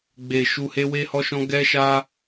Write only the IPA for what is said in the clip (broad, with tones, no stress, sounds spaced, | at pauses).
ɡ͡b e˨ ʃ u˧ h e˦ w e˦ h ɔ˦ ʃ ɔ̃˦ ɡ ɛ˦ ʃ a˦